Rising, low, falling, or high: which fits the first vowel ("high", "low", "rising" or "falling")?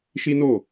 high